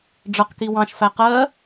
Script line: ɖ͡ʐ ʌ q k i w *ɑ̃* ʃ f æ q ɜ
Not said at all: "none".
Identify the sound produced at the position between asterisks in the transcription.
ɑ̃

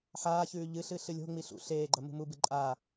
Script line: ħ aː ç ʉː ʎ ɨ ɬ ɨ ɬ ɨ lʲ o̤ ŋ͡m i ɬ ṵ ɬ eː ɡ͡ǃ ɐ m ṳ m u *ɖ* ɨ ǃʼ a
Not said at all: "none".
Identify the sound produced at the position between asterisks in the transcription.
b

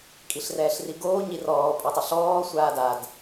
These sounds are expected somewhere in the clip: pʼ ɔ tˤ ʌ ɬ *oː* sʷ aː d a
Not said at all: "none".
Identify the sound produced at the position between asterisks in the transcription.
ɔː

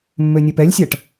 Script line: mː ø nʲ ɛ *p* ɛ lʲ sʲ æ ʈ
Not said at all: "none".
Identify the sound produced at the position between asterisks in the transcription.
p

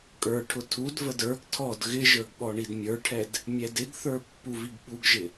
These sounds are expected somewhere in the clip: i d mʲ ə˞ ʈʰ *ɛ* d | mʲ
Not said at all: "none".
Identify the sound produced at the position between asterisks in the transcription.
ɛ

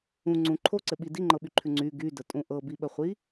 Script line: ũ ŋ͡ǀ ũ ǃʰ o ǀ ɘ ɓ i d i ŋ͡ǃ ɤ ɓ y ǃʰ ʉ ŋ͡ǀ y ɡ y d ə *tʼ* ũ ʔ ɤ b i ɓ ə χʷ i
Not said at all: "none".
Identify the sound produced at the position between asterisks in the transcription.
tʼ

